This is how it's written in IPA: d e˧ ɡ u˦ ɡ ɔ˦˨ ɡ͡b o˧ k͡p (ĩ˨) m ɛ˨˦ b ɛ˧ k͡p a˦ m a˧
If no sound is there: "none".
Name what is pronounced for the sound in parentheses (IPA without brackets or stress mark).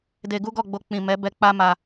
ĩ˨